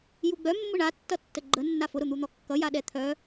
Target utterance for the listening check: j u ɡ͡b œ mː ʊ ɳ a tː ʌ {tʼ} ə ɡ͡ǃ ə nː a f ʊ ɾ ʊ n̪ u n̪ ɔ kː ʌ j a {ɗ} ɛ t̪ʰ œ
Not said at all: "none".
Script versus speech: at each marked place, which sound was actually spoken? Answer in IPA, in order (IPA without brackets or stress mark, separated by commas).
tː, ɗ